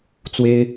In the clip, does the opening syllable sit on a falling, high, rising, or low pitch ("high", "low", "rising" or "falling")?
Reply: high